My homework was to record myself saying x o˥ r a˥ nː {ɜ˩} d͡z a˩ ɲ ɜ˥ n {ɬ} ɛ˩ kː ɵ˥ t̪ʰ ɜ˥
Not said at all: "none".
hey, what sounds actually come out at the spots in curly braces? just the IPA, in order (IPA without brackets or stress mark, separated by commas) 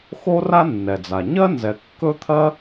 ɛ˩, z